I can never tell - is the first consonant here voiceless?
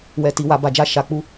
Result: no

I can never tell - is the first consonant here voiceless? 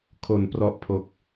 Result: yes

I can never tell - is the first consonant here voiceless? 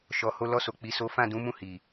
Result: yes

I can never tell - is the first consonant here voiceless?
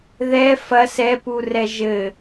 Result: no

